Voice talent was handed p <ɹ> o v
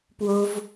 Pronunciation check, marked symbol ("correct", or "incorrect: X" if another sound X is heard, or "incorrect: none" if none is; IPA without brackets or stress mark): incorrect: w